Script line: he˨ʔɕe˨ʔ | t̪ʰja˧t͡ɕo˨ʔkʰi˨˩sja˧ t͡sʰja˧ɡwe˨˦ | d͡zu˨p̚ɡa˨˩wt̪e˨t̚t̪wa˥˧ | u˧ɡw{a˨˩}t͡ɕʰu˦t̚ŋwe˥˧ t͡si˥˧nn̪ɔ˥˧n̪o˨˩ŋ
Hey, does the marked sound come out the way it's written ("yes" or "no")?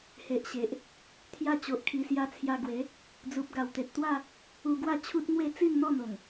no